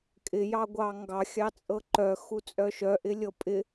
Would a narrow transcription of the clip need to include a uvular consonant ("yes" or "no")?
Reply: no